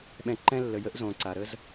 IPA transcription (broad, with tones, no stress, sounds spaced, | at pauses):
ɓ ɛ̃˧ ǃ ɛ̃˦ lː ə˨˦ j ə˦ ʔ z õ˨ ǀ a˨ ɾ ə˦ z